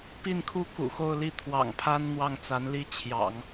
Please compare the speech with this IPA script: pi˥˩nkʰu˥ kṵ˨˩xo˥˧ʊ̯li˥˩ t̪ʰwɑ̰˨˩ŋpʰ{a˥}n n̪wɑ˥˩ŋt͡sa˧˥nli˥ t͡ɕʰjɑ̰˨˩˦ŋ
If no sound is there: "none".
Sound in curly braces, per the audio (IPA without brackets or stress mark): a˥